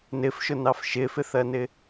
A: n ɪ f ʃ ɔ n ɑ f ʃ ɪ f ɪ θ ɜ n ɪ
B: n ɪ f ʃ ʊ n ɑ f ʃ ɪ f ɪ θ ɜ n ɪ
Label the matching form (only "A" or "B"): B